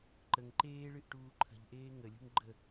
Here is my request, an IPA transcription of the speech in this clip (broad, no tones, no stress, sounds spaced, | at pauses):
ǃ ə ŋ ǃ eː ɭ ɨ ʔ ʈ uː ǃʰ ə̤ ʎ ʔ eː ŋ ə lʲ ṳ ŋ ɡ͡ǃ ə